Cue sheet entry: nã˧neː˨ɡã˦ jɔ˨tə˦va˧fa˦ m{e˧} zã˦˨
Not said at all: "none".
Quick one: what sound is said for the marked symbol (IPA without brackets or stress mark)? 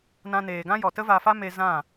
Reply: e˧